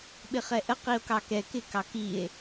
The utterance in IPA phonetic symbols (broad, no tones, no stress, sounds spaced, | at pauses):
ɓ ɪ χ ɛ ʔ ə q i o̯ k ɑ k ɛ k ɪ k ɑ k i e̯